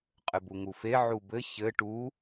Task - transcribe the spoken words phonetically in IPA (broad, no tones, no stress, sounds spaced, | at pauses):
qʼ ɘ b u ŋ u f e ʕ u b ɘ ç ɘ ʈ u